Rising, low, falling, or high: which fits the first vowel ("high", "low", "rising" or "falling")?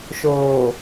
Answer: low